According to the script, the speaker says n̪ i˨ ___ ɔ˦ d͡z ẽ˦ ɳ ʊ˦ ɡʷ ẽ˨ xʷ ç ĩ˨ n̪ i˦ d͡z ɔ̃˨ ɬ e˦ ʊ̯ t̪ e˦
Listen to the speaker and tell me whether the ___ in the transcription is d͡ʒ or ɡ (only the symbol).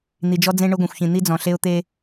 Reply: d͡ʒ